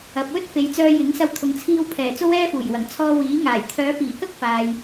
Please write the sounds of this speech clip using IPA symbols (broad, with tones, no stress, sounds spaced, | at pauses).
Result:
ɐ˨ p̚ w ɵ˥ t̚ f e˨˧ j t͡s œː˧ j ɪ˨˥ ŋ s ɐ˧ w t̪ʰ ʊ˨ ŋ t͡sʰ iː˧ w pʰ ɛː˨˩ t͡s o˥ w ɛː˥ f uː˨˩ j w ɐ˨˩ ŋ t͡sʰ ɔː˧ w iː˨˥ ŋ aː˨˩ j t̪ʰ œː˨˧ p iː˨˩ k ɐ˥ k̚ f aː˨ j